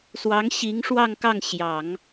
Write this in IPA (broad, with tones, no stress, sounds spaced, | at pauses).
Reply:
s w ɑ˧˥ ŋ ɕ i˧˥ ŋ ʂ w ɑ˥˧ ŋ k ɑ˥˩ ŋ ɕ j ɑ˨˩˦ ŋ